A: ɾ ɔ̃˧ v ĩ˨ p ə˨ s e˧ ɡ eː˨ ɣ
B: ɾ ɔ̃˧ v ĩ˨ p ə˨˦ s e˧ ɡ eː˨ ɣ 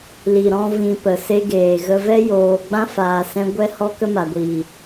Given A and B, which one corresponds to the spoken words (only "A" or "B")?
A